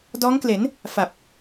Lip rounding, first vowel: rounded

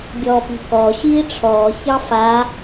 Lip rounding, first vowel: rounded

